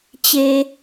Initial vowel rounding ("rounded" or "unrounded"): unrounded